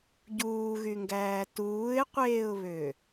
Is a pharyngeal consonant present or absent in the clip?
absent